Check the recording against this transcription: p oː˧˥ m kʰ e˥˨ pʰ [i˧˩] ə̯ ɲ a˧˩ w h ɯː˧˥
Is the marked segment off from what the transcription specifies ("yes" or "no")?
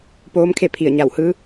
no